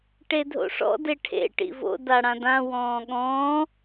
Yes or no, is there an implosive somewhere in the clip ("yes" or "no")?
yes